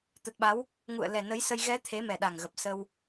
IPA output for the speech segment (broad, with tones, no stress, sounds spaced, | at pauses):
t̪ ə˨˩ t̚ ɓ a˨˦ w | ŋ ṵ˧˨ ə̯ l ɛ˨˩ n ə˨˦ j s ə˧ j ɣ ɛ˨˦ t̪ʰ e˨˦ m ɛ˨˩ ɗ a˨˩ ŋ ɣ ə˨˩ p̚ s ə˧ w